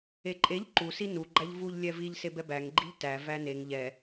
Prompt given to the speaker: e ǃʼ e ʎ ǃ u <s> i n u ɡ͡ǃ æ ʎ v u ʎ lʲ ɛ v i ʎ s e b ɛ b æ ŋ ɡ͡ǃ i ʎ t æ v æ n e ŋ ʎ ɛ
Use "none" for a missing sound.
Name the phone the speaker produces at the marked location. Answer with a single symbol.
s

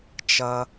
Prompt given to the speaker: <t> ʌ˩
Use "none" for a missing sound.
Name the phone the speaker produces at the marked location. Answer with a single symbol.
t͡ʃ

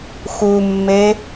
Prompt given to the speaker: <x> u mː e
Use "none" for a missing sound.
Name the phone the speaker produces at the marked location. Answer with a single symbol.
x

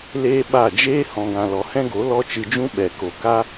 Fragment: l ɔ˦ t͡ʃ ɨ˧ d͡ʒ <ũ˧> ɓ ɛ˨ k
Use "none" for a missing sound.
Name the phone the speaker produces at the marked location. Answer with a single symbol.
ũ˦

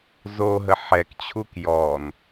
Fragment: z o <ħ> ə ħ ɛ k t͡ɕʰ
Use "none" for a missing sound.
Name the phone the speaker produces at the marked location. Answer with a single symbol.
ɦ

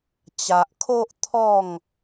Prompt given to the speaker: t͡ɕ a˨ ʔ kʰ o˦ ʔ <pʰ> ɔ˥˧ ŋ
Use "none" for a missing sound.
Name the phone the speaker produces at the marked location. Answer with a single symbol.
t̪ʰ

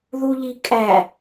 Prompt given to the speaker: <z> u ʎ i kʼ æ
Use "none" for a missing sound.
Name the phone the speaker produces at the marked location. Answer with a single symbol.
ð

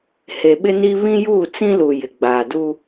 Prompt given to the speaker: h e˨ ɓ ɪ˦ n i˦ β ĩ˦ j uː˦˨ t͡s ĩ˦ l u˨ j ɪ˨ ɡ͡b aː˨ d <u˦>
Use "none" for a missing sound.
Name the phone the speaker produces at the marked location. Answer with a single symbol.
u˦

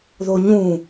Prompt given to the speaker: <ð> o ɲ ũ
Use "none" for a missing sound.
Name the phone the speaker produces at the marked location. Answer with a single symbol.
ð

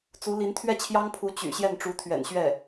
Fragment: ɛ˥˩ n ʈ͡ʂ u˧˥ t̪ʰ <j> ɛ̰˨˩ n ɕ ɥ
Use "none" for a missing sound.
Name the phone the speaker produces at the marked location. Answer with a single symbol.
ɥ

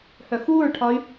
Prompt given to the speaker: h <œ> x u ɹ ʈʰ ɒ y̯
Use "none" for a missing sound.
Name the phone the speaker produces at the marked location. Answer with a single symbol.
œ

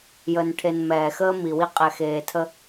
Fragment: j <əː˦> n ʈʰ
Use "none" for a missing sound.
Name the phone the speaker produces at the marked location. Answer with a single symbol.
əː˨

